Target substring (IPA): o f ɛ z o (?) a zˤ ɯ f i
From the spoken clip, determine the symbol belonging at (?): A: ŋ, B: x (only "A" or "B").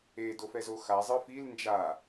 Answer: B